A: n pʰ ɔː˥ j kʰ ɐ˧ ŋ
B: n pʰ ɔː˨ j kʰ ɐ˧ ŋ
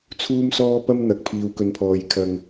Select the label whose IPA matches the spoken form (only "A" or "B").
B